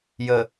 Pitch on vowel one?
low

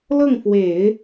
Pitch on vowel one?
falling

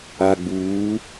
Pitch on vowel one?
low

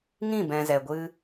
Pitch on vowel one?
falling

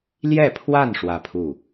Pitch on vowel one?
falling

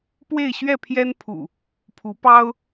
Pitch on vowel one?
falling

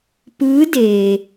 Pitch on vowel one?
rising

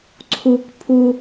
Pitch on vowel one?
high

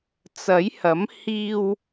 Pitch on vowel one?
rising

